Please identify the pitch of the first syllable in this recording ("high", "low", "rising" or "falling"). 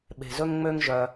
low